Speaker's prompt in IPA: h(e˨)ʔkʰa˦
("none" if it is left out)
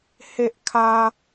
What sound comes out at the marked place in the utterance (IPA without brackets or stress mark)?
e˦